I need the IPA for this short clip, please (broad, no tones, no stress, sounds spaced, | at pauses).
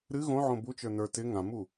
ɾ ɨ ɣ õ ʕ õ b u t͡ʃ ə˞ n ə˞ t ɪ ŋ ã m u